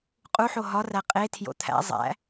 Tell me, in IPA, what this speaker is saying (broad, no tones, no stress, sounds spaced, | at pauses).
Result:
qʼ u ħ o ɦ ɒ r æ qʼ e tʰ j o̰ t̪ʰ æ̰ zˤ æ̰